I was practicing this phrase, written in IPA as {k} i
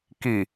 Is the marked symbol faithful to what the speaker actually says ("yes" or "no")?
yes